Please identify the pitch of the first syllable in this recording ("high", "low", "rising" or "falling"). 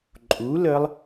rising